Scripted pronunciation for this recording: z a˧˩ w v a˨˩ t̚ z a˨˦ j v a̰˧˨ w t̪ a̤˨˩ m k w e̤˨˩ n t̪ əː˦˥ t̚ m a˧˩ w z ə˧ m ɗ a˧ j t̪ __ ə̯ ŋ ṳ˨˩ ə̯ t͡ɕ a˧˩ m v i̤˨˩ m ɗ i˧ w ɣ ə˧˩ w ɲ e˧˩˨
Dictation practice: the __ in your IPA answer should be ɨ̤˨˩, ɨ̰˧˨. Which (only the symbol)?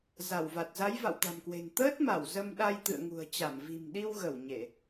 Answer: ɨ̰˧˨